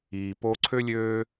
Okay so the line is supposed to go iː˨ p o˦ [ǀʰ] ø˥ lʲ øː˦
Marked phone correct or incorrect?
correct